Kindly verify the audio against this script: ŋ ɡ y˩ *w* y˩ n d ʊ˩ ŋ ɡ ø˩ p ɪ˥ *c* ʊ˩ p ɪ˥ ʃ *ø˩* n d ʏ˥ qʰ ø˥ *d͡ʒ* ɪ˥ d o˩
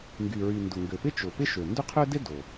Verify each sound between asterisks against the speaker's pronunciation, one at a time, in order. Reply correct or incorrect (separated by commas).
incorrect, incorrect, correct, incorrect